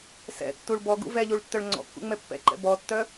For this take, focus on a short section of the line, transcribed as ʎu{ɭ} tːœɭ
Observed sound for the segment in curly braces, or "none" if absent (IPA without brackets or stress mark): ɭ